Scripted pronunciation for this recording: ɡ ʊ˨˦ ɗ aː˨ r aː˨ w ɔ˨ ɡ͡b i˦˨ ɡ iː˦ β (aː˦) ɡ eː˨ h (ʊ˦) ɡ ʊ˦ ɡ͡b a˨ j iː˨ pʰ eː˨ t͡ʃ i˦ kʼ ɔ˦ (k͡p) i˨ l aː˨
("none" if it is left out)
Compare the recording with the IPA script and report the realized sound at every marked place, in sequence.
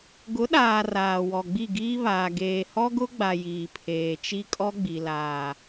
aː˨, ɔ˦, ɡ͡b

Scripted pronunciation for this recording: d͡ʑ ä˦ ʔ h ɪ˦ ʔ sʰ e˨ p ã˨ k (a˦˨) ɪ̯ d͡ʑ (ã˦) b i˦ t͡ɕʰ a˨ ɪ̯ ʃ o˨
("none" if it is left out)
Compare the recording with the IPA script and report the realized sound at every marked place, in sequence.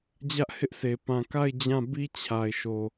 a˦˨, ã˦˨

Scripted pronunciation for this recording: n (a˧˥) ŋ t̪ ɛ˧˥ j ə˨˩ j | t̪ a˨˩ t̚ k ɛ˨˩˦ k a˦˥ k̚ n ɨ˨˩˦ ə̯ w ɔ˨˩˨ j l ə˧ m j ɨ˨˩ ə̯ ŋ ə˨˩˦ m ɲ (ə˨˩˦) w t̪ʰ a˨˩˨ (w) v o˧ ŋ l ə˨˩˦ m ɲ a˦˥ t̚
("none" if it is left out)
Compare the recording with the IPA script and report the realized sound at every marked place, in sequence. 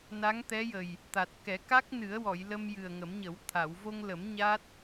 a˧˥, ə˨˩˦, w

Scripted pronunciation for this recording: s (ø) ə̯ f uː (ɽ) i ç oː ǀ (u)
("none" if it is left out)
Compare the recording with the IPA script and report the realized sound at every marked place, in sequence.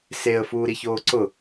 e, ɾ, ʊ

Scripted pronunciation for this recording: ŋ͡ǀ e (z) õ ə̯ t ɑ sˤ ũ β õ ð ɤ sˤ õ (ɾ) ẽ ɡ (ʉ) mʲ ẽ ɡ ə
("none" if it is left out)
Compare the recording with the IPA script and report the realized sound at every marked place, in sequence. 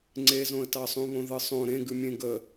z, ɾ, ʉ

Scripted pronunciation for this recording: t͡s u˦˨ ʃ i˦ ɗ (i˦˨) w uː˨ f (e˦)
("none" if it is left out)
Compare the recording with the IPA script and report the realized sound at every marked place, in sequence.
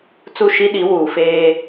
i˨˦, eː˦

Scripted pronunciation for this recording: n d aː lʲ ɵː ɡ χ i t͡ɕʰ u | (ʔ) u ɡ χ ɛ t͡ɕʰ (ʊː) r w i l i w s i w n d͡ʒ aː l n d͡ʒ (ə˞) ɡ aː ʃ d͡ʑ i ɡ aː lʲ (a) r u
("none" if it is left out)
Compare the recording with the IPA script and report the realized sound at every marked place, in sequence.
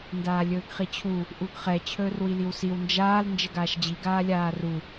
ʔ, ɵː, ə, aː

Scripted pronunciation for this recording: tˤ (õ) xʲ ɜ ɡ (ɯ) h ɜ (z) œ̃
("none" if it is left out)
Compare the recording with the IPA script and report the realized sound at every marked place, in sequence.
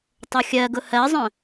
o, ʊ, zˤ

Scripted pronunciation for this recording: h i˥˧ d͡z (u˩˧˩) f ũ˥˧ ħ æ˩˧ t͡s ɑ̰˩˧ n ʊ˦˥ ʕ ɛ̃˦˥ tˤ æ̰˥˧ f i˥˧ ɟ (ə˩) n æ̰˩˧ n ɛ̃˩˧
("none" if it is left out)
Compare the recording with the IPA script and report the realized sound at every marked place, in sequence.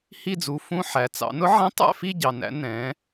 u˩˧˩, ɑ˩

